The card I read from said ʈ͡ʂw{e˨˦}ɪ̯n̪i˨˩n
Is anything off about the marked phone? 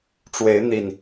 no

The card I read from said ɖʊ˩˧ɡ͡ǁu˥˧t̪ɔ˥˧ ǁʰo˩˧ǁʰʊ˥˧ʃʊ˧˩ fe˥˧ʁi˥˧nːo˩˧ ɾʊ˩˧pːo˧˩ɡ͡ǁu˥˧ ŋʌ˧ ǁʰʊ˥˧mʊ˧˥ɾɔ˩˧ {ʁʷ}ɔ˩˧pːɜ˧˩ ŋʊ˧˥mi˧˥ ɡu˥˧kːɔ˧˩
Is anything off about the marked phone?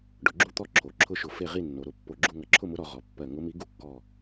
yes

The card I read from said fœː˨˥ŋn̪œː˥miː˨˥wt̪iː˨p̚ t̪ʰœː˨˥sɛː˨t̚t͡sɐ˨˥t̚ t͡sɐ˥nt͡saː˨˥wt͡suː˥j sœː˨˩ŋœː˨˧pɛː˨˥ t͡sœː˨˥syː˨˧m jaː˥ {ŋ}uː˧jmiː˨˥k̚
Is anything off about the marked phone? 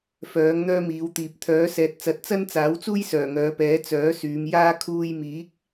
yes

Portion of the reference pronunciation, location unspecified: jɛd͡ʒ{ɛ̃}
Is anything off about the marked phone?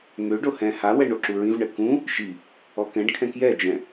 no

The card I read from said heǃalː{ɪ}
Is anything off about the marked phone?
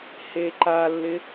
no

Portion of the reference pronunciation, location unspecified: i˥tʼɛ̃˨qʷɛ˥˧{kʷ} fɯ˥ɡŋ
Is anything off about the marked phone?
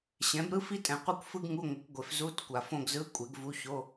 no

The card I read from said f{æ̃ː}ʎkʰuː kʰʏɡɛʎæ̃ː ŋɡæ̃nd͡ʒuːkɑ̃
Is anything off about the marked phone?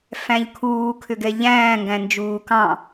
yes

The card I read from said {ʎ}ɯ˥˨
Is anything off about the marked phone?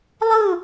yes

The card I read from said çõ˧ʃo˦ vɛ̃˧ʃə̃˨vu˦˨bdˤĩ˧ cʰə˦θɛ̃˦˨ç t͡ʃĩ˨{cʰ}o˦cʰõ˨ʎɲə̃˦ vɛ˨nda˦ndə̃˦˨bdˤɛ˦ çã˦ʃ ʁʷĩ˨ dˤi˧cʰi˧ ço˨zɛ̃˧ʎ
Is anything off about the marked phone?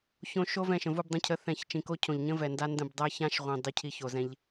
yes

